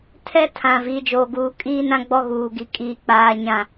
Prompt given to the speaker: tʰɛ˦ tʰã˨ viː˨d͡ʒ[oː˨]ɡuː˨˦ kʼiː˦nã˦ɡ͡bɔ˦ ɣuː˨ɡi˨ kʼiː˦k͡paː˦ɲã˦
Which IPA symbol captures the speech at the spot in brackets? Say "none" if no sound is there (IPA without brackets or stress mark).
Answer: oː˨